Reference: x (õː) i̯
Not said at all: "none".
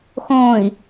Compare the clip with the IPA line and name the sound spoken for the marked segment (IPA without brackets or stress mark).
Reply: õː